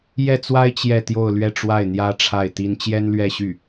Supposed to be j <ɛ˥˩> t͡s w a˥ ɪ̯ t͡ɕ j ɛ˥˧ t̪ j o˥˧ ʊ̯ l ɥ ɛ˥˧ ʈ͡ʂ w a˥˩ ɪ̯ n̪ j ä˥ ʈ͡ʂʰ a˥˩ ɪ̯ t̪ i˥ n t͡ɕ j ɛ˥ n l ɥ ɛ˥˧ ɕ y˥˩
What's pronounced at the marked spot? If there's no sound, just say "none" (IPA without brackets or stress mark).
ɛ˥˩